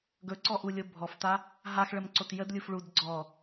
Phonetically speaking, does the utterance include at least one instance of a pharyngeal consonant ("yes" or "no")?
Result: no